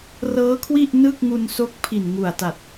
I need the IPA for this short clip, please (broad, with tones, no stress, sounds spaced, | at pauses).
r ɤː˦˥ kʰ w i˥˩ ʔ n ɯ˥˩ k̚ ŋ u˧ n s o˦˥ k̚ pʰ i˨˩ n ŋ u˨˩ a̯ t a˨˩ t̚